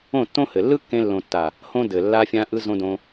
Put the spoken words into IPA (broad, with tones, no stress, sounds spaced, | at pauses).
õ˦˨ tː õ˦ h ɘ˨ lː ɯ˦ kː ẽ˧ lː õ˨ tː a˨ | h õ˦ d ɘ˨ lː a˧ fʲ ã˧ ʔ ɯ˧ z õ˧ d õ˧